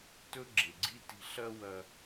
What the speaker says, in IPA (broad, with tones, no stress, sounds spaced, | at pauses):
t ɵ˥ ɡ͡ǁ e˩ ɡ͡ǀ i˥ t i̤˧ ɬ ɐ˥ w ɐ˥